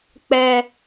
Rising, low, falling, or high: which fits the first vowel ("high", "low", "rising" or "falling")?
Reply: high